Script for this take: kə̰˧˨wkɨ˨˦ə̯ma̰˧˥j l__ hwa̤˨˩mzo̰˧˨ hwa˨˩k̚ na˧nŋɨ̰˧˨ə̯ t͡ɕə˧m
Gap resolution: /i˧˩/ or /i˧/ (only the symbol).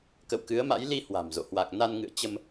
i˧